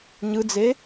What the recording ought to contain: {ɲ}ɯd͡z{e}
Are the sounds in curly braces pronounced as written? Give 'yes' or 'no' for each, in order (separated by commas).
yes, yes